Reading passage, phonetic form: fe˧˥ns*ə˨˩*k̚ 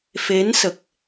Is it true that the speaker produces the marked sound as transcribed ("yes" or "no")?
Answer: yes